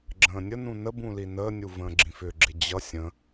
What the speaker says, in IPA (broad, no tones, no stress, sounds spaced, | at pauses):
ɡ͡ǁ ə̃ː nʲ ə n ũ n ə b ũ l i n əː nʲ u v ə̃ː ɡ͡ǁ ĩ f ʏ ɡ͡ǁ ɪ d͡ʑ ʌ sʲ ə̃